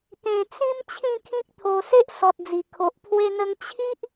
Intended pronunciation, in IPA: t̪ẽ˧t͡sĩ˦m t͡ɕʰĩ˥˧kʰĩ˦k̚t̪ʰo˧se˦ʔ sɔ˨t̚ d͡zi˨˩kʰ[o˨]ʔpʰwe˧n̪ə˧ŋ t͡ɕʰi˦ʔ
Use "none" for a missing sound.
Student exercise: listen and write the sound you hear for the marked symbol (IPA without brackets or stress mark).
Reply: o˨